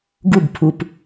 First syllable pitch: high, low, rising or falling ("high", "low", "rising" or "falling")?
falling